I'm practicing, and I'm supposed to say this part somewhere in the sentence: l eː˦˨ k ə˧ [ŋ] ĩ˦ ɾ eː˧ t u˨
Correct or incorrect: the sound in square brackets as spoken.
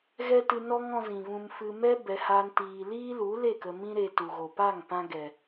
incorrect: m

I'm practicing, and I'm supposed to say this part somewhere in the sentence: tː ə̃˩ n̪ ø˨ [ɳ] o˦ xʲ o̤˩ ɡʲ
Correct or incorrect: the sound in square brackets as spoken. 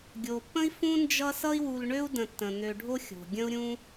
incorrect: ɖʱ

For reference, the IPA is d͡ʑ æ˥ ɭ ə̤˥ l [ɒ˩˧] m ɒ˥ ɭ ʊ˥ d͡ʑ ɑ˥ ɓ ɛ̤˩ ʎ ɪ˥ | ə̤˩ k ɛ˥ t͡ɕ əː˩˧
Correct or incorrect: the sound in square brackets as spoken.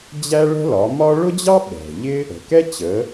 correct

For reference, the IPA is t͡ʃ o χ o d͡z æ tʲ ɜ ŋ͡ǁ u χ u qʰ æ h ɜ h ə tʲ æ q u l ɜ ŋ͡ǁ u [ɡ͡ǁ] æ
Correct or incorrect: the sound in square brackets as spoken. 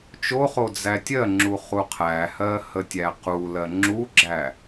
correct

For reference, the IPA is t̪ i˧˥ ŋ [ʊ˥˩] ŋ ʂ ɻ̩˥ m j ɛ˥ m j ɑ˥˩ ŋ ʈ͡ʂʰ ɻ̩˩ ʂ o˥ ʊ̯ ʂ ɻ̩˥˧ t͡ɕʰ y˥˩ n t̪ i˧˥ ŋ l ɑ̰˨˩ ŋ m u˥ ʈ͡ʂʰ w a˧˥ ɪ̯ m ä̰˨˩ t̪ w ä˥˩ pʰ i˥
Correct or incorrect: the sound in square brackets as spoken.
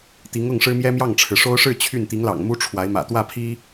correct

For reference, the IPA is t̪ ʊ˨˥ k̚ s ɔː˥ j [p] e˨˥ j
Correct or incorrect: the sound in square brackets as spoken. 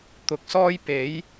correct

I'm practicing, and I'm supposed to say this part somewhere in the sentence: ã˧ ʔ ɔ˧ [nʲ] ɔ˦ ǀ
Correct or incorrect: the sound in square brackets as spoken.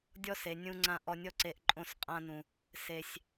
correct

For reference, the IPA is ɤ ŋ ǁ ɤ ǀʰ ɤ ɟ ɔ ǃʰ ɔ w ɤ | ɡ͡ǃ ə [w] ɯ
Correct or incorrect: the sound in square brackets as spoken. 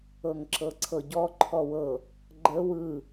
correct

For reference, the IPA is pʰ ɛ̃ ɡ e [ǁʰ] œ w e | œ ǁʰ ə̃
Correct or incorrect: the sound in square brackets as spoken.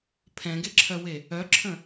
correct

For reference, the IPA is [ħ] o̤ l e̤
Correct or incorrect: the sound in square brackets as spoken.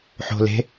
correct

